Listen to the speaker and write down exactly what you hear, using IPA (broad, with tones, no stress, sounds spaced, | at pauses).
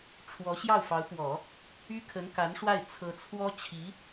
ʈ͡ʂʰ w ɔ˧˥ ɕ j ɑ˥˩ ʊ̯ f ɑ˧˥ ʊ̯ p w ɔ˨˩˦ | y˥ kʰ ə˧˥ n k a˧˥ n ʂ w a˥˩ ɪ̯ t͡sʰ ɤ˧˥ t͡sʰ w ɔ˥ t͡ɕʰ i˧˥